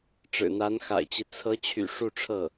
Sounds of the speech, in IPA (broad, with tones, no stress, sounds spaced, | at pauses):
ʈ͡ʂ ɻ̩˨˩ n̪ a˧˥ n x a̰˨˩ ɪ̯ t͡ɕ i˦ t͡sʰ ɤ˧˥ t͡ɕʰ y̰˨˩ ʂ u˥˧ ʈ͡ʂʰ ɤ˥˩